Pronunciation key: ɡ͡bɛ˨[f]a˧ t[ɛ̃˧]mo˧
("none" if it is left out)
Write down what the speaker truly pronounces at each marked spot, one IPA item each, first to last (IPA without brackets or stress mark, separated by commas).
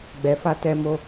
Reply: f, ɛ˧